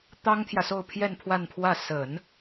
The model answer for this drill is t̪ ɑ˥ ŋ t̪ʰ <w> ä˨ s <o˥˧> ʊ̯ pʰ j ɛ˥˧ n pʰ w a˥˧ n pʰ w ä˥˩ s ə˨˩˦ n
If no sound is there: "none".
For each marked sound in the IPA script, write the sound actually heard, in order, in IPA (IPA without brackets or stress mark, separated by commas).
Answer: j, o˥˧